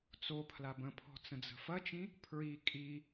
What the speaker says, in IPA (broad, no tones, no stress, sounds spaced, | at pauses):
t͡s o pʰ l a b ə̃ pʰ ɔ̤ t͡s ə̃ d͡z ə̤ f ɐ t͡ʃ ĩ | pʰ ɹ i kʼ i